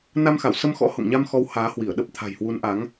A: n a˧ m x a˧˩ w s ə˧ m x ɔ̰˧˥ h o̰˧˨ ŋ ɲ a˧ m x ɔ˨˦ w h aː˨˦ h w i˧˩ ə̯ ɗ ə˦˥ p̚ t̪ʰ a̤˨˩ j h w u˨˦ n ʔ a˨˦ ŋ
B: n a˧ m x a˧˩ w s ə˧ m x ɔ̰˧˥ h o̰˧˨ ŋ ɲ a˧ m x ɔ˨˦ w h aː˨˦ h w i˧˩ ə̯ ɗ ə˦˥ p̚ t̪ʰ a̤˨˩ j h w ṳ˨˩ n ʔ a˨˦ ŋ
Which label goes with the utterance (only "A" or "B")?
A